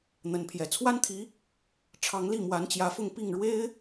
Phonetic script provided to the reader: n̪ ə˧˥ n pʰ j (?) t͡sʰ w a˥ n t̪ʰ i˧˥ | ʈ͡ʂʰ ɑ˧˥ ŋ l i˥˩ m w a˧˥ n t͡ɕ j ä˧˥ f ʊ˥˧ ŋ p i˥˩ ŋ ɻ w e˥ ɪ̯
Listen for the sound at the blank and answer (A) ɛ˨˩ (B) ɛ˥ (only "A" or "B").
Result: A